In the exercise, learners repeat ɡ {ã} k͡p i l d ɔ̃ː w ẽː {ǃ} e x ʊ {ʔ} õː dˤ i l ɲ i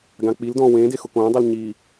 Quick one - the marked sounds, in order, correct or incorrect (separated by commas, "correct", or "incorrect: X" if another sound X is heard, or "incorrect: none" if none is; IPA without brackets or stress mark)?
correct, incorrect: d, incorrect: k